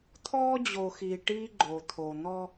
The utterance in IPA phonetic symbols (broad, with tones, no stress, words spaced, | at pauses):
t̪ʰɔː˦d͡ʑo˨xiː˨ ʈiː˦ ɡ͡ǃoː˨t̪ʰo˨ n̪ɔ˦